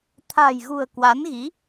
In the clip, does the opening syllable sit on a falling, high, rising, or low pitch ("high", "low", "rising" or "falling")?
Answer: low